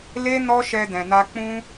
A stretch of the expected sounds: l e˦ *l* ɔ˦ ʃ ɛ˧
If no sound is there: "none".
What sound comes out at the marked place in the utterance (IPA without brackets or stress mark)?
n